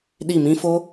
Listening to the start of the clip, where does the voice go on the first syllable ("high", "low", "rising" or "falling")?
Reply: falling